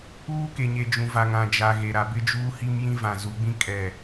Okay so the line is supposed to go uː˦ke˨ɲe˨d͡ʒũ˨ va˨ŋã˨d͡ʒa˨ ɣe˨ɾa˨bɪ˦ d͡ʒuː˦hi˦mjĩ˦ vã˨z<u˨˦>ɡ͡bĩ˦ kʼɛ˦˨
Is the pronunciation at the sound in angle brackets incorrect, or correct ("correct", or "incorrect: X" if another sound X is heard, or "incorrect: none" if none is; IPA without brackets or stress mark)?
correct